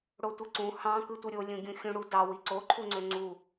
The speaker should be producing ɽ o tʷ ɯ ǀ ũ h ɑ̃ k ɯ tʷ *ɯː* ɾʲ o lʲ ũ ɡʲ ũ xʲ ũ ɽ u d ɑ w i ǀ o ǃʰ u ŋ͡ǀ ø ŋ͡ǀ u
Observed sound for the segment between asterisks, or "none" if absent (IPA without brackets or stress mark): ɯ